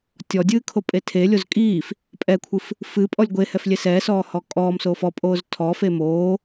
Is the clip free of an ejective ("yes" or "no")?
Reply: no